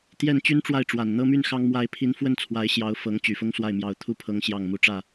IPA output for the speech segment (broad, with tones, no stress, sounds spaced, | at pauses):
t̪ j ɛ˥˩ n t͡ɕ y˥ n ʈ͡ʂ w a˥˩ ɪ̯ ʈ͡ʂ w a˨˩ n n̪ ɤ˥˧ m y˥˩ n x ɑ˥ ŋ m w a˥ ɪ̯ pʰ i˧˥ n f w ə˥˩ n t͡sʰ w a˧˥ ɪ̯ ɕ j ɑ˧˥ ʊ̯ f ɤ˧˥ ŋ t͡ɕ y˨˩ f ʊ˥ ŋ s w a˥˩ ɪ̯ m j ɑ˧˥ ʊ̯ t̪ʰ u˥˩ pʰ ɤ˧˥ ŋ ɕ j ɑ˥˩ ŋ m u˧˥ ʈ͡ʂ ä˥˩